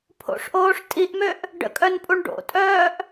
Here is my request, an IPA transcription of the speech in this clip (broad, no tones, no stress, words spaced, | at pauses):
pʰo̰ʂʔoːʂ tʼiʔmøʔ | ɖə̰kʼœnpʼuɳ ɖo̰tʼœːʔ